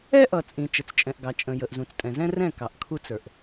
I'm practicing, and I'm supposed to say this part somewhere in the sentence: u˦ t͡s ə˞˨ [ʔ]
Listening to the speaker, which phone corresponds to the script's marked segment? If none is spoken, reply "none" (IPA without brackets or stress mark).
ʔ